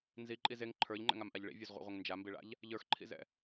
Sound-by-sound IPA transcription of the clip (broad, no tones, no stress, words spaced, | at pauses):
nziǃʼiz eŋ ǃʰə˞ʎŋ͡ǃɛ̰ŋamʔaʎ ɭḭvʲə˞zʁʷḛʁʷeŋ nd͡ʒambiɭa̰ʎ | ʎə˞xǃʰḭzɛ̰